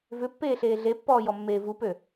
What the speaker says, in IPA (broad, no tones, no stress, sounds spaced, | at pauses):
v ʏ pː eː ɬ eː ɮ e pː ɔː j ɔ mː eː v u p ø